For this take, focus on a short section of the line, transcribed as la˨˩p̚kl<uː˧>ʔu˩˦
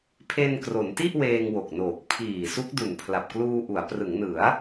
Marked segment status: correct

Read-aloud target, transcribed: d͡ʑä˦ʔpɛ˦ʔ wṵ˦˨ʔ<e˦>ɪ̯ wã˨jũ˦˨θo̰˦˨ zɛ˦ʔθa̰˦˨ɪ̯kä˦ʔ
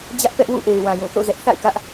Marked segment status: incorrect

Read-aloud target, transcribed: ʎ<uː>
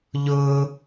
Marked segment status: incorrect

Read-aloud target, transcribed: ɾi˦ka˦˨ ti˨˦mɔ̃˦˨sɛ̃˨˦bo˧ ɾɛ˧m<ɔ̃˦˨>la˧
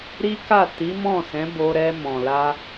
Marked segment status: incorrect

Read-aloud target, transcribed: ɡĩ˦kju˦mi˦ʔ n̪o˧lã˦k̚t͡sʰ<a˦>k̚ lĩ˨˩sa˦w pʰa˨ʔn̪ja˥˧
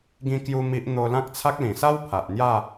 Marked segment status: correct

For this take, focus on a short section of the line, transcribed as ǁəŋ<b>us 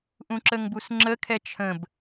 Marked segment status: correct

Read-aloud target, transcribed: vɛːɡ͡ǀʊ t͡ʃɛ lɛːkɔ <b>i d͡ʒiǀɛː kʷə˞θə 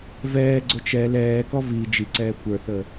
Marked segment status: incorrect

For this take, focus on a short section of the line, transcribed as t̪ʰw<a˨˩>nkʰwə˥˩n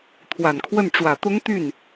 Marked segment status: correct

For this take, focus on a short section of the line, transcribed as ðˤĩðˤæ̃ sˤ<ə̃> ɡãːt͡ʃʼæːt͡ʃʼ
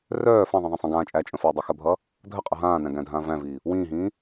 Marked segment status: correct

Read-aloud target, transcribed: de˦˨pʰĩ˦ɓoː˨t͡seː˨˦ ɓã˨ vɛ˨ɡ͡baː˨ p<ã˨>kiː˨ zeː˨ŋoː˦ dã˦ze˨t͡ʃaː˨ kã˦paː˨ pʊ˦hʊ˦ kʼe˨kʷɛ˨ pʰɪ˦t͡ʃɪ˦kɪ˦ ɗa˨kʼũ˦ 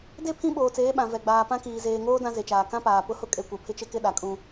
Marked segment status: incorrect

